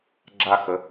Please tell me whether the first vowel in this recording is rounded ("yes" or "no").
no